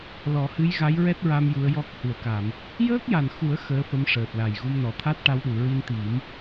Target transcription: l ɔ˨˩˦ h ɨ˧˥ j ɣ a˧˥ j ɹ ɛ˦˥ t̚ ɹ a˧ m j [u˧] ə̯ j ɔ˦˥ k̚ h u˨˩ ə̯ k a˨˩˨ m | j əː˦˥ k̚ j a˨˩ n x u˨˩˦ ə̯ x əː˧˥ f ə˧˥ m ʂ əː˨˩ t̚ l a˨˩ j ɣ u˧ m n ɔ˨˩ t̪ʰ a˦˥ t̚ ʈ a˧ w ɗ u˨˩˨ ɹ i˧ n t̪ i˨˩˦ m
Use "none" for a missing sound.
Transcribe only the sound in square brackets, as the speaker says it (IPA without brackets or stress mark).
u˧˥